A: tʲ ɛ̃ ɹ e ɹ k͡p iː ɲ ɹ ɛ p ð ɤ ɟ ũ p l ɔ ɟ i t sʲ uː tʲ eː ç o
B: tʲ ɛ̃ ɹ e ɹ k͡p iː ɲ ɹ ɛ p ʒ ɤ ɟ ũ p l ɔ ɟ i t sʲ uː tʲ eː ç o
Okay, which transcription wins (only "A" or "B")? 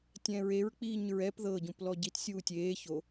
A